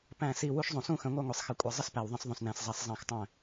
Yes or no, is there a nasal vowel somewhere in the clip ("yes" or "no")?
yes